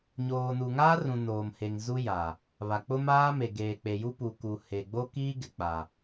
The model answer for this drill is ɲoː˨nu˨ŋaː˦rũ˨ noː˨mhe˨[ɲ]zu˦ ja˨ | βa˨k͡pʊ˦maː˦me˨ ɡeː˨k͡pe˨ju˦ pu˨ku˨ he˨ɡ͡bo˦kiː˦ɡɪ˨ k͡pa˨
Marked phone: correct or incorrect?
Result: incorrect: ŋ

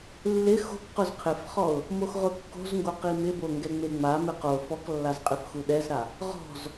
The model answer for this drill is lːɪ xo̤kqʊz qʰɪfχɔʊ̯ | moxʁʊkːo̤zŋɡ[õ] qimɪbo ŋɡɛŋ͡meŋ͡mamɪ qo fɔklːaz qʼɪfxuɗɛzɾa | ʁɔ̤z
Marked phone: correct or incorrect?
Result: incorrect: o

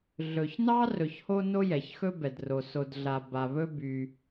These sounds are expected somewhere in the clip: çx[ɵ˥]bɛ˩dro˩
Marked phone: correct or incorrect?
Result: correct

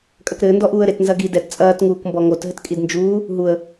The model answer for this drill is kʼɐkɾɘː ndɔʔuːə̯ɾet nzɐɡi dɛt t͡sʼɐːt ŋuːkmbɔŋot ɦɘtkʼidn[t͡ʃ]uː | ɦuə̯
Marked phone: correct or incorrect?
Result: incorrect: d͡ʒ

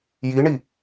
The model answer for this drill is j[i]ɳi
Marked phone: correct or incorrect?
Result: correct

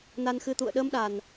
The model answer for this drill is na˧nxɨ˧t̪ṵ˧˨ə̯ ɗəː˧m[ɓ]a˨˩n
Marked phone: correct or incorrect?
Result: incorrect: ɗ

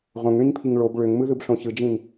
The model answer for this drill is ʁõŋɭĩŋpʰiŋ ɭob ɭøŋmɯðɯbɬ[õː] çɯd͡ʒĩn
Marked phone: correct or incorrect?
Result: incorrect: õ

